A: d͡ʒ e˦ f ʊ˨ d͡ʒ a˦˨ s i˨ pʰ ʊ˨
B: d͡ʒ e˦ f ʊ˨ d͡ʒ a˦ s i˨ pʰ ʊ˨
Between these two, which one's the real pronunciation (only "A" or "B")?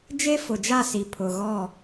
A